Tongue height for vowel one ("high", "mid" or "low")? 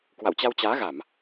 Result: low